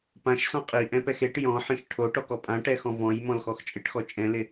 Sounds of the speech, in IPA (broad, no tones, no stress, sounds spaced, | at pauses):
p ã ʃ s ɔ̃ qʼ i ʔ ɛ̃ p ɛ x e ʈ j ɔ̃ ħ ĩ ʃ ʈʰ o ʈ ɔ k ɔ pʼ ã ʈ ɛ x ɔ̃ v ɔ̃ j m ɔ̃ l x ɔ x t͡ʃʼ ɪ ʈ x ɔ t͡ʃʼ ɛ̃ l ɪ